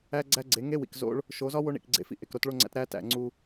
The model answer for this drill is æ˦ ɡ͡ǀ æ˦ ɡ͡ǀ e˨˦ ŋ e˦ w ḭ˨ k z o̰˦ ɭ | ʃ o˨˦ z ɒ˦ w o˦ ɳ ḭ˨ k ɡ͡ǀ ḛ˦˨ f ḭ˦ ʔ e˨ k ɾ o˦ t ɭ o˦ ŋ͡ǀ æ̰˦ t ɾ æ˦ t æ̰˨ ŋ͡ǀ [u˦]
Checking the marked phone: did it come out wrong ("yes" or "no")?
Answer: no